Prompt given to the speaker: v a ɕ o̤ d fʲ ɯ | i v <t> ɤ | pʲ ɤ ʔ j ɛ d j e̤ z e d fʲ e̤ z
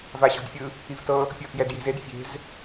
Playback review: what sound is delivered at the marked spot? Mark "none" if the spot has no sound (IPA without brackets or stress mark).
t